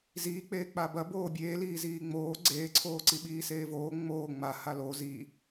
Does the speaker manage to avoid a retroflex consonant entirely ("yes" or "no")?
yes